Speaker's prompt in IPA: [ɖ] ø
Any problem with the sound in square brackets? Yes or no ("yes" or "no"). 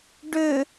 no